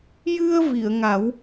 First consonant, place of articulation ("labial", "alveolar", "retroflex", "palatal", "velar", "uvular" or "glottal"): palatal